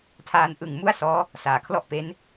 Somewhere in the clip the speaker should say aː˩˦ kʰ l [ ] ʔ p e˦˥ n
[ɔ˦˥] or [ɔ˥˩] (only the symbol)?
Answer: ɔ˥˩